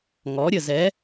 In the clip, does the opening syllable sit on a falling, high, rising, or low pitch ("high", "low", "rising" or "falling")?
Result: rising